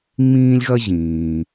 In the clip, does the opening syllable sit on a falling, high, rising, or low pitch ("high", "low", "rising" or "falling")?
high